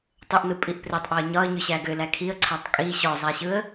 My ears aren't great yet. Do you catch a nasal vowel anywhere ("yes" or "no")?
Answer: no